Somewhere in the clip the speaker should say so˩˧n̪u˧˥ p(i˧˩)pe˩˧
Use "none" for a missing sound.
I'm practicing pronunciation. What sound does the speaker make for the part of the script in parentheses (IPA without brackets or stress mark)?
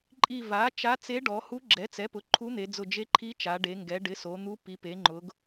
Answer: i˩˧